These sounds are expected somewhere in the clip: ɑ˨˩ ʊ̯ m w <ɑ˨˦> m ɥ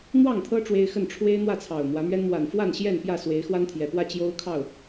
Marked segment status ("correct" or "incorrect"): incorrect